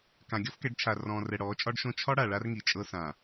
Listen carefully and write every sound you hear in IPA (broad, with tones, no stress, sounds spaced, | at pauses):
k ã˨ ɡʲ ɔ˦ f k ɛ˨˦ ɖ t͡ʃʰ a˨ r ɔ̃ː˨ r ɛ˨ ɽ ɔː˨˦ t͡ʃʼ ɒ˦ ɖ ʃ õ˦ t͡ʃʰ ɒ˦ ɽ a˨ ɭ a˦ r ŋ i˨ t͡ʃʼ ɤ˦ s ã˨